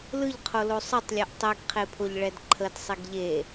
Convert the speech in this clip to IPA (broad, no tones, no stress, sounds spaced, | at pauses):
l ɯ ʎ qʰ o l o sˤ ɯ tˤ lʲ ɛ ʔ tˤ e ɡ qʰ e pʰ o ʎ ɭ ɛ d ǃʰ ə d sˤ i ɡ ʎ e